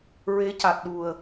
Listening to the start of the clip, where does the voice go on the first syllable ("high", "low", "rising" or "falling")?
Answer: rising